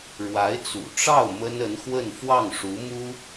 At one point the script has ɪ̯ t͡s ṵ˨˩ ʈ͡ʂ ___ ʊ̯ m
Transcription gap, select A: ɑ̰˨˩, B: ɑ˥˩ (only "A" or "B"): B